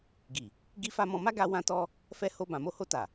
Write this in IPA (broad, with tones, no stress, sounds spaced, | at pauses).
ɡ i˨ | ɡ i˦ f a˦ m ɔ̃˧ m a˦ ɡ a˧ w ã˦ t ɔ˦ | f ɛ˧ h o˧ b ã˨ m o˧ h o˧ t a˨